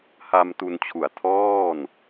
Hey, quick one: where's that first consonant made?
throat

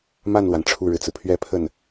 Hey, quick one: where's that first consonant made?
lips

